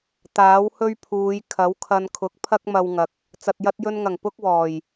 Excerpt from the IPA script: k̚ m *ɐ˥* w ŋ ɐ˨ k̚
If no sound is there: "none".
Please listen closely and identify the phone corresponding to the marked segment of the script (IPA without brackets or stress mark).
ɐ˧